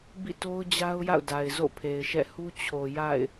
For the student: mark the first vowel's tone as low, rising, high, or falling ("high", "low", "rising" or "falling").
falling